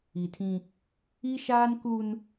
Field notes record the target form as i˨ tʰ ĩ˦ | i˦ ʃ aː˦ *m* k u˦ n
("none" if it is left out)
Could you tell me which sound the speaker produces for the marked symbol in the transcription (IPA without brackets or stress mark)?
n